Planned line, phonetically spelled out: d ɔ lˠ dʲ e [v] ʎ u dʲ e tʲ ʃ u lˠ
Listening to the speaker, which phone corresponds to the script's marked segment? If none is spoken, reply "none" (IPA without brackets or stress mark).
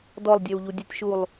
w